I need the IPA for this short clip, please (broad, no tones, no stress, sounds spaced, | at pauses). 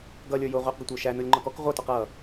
ɡ ʌ lʲ ə˞ j ʊ ʁʷ i q ɡ ə tʷ ə˞ ʃ æ n ʊ lʲ ŋ͡ǃ ɔ k ɔ k ʁʷ ʌ t ɔ q ʌ